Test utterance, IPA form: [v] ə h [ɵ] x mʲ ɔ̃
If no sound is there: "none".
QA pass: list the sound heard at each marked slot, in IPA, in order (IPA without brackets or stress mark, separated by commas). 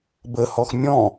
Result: b, ɔ